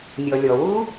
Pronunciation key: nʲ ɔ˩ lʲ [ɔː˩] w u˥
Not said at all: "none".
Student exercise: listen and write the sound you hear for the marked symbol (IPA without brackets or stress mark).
ɔ˩